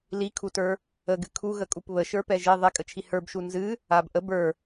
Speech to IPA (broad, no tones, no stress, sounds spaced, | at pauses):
l i kʰ u t ə˞ | ə ɡ ɨ kʰ u ɣ ə kʼ u p β ə ʃ ə˞ p ɛ ʒ e ðˤ ɛ kʼ ə t͡ʃʰ i h ə˞ b ʃ u n z ɨ | a b ʔ ə b ə˞